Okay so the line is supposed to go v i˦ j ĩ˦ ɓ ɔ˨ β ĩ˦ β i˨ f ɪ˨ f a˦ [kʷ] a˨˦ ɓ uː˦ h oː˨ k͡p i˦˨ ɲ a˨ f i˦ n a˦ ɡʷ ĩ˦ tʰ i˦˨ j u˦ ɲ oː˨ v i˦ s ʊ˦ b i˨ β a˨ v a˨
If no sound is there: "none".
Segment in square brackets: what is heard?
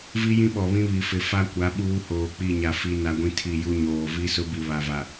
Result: kʷ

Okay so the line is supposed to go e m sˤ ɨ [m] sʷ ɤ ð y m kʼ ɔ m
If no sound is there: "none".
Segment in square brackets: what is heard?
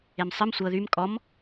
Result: m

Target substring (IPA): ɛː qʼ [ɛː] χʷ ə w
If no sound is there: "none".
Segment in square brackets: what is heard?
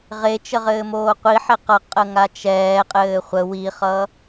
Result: ɘː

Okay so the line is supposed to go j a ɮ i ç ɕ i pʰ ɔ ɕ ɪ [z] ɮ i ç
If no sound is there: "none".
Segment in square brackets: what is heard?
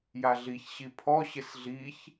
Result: s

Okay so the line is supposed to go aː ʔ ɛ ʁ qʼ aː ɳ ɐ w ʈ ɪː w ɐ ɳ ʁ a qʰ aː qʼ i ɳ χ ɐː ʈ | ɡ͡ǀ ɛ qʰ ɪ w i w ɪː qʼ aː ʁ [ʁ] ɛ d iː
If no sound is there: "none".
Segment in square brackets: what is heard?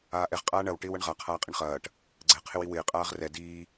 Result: r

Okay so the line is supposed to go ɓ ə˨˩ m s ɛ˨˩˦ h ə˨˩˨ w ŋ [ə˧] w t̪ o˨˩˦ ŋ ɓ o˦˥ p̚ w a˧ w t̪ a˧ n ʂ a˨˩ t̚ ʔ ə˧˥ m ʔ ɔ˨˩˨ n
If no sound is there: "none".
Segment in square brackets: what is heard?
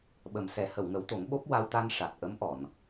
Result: ə˨˩˦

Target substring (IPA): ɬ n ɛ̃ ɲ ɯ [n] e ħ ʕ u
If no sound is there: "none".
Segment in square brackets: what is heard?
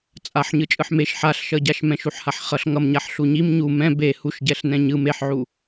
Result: m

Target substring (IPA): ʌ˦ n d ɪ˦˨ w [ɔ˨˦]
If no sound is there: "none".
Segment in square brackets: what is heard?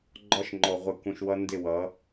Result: ʌ˨˦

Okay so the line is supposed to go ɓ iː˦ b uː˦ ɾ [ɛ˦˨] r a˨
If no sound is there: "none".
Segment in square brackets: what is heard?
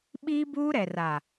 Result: ɛ˨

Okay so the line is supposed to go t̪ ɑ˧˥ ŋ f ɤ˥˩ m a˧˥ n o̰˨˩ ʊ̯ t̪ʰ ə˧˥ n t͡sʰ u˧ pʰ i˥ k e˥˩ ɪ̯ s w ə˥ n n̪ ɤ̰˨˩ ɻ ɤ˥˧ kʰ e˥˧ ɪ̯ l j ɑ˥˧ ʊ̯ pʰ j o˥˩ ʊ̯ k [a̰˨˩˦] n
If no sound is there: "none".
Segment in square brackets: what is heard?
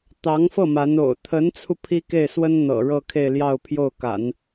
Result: a̰˨˩˦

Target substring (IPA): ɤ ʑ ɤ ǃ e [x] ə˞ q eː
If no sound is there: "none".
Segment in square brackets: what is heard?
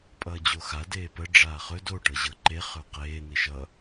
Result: χ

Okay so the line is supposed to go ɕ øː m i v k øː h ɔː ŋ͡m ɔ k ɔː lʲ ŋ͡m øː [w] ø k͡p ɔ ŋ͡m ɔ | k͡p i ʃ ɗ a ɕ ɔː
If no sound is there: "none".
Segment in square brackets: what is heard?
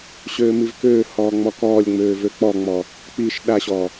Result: v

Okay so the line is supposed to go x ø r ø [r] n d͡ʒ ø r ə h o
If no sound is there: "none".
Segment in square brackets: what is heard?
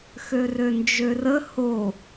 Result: none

